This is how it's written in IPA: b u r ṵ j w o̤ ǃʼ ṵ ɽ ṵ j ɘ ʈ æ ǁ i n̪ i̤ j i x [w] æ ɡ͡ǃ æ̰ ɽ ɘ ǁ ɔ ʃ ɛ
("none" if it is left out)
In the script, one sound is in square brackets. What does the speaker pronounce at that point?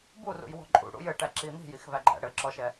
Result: v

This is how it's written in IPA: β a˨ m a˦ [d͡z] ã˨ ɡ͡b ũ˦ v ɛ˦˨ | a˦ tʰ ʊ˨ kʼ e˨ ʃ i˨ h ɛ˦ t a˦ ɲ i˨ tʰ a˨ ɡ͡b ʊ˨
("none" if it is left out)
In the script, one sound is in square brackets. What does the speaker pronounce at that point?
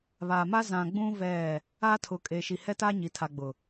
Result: z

